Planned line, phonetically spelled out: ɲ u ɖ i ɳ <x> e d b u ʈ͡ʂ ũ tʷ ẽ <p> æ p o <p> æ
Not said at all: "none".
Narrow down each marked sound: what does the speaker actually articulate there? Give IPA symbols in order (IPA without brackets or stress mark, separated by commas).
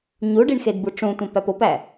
x, p, p